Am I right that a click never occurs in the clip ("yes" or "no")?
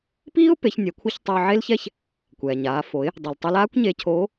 yes